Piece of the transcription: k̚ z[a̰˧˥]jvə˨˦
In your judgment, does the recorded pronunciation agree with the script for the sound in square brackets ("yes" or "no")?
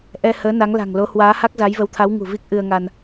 no